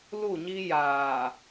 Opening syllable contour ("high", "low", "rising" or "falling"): falling